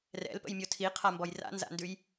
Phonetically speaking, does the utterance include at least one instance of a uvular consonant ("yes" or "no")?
yes